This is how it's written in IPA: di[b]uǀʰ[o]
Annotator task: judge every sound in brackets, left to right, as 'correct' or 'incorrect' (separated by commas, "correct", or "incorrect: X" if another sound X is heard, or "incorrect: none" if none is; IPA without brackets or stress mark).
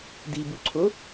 correct, correct